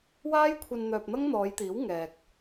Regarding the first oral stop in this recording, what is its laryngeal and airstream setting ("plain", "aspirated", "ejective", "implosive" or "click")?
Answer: aspirated